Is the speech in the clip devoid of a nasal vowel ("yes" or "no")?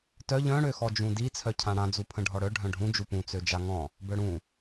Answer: no